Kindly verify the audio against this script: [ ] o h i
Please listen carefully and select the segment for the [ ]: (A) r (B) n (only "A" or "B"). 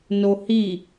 B